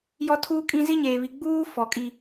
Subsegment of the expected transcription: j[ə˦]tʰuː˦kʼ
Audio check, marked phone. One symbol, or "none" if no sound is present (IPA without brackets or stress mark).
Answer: ɔ˦